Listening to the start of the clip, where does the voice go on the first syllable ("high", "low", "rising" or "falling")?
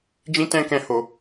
high